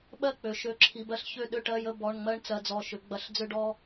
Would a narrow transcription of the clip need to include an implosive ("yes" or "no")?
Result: yes